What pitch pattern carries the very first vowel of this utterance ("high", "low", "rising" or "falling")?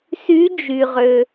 rising